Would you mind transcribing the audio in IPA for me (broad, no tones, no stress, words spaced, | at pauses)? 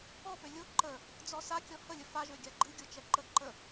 ɔpø lʲo ǃə | d͡zɔsa kʲɔhəlʲə faʒø ɡʲaɡ͡ǃɨ ɡʲot͡ʃɛǃə ǃə